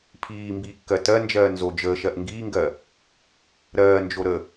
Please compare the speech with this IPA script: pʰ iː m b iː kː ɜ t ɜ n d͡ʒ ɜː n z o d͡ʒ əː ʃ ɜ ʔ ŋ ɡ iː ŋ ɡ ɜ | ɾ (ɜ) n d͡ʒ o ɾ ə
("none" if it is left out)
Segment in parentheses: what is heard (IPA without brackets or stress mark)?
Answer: ɜː